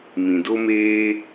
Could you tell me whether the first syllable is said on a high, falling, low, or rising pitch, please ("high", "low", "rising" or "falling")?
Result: low